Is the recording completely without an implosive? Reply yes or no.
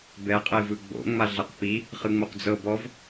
yes